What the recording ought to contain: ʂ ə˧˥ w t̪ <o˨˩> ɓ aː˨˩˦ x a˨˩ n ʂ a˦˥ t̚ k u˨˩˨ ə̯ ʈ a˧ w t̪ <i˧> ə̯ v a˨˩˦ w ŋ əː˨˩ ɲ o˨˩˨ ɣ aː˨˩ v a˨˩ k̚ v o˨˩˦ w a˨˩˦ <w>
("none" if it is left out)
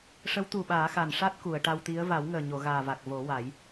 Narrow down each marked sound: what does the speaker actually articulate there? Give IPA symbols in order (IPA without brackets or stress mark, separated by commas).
u˨˩, i˧˥, j